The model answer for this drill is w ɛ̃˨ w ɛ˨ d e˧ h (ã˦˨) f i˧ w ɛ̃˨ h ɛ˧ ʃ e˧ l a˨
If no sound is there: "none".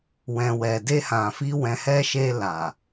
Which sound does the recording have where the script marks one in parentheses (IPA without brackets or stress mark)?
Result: ã˨